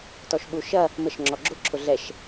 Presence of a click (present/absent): present